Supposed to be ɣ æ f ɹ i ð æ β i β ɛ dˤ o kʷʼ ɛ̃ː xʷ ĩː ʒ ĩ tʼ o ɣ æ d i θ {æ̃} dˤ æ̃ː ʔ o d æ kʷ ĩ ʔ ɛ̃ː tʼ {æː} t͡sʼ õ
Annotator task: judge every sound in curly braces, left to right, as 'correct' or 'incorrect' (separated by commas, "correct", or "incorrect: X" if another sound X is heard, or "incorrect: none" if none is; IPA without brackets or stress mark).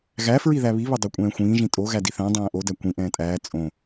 correct, correct